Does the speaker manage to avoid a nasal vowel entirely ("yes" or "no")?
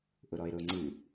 yes